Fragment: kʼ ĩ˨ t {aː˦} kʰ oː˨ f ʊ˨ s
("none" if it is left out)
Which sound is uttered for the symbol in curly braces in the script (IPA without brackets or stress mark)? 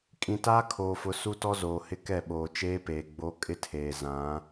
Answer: aː˦